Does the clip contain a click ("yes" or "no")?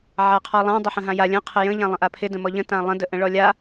no